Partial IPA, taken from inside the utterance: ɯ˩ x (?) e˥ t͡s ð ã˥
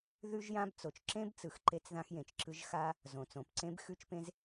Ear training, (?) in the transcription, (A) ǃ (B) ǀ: A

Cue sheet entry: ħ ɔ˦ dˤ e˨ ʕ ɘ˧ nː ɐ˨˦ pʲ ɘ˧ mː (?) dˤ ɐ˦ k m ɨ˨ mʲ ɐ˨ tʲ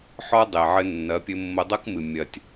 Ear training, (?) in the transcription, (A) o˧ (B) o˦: A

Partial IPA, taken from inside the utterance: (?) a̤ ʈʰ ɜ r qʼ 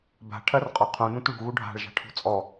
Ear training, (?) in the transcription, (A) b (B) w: A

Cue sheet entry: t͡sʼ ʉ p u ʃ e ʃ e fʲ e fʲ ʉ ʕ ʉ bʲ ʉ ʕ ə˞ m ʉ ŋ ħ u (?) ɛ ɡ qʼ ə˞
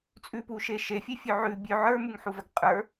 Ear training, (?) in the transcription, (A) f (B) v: B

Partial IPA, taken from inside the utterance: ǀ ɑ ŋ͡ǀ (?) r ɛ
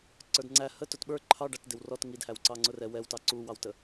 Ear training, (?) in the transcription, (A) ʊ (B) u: A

